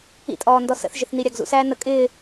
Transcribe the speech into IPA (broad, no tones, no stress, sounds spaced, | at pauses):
ḭ tʼ ɔː n d ɔ s ə̰ θ ʒ ɪ θ n i ɾʲ ɑ ɡ z ṵ s æː n ə kʼ ɪː